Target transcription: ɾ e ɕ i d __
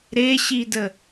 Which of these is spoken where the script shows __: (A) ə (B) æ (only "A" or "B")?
A